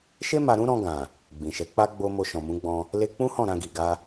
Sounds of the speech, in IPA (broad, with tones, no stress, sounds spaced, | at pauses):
ʃ e˦ m a˧ ɾ ũ˦ ɾ ɔ̃˧ ɡ ã˨ | ɡ͡b ĩ˨ ʃ ɛ˨˦ k͡p a˦ ɡ͡b o˧ m o˧ ʃ ɔ̃˨ m ũ˨˦ ɡ͡b ɔ̃˧ | l e˧ k͡p ũ˦ h ɔ̃˦˨ ɾ ã˧ ɡ i˨ ɡ a˧